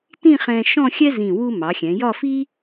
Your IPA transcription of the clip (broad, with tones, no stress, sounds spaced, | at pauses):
t ĩ˥˧ χ ɛ̃˧ ʃ ɔ̃˥˧ xʲ ɛ˥ z ĩ˧˩ w u˧ m ɑ˩˧ xʲ ɛ̃˩˧ j ɒ˥˧ f i˥